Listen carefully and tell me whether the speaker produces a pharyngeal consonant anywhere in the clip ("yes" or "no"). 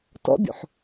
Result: yes